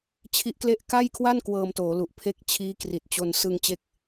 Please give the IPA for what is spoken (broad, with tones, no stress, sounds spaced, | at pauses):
t͡ɕʰ i˦˥ ʔ k l e˥˩ ʔ k a˥˩ j kʰ w a˥˩ n k w ɤː˧ m t oː˩˦ l u˨˩ ʔ pʰ e˦˥ k̚ t͡ɕʰ iː˦˥ k r i˨˩ t̚ t͡ɕ o˧ n s ɯ˧ ŋ t͡ɕ e˦˥ k̚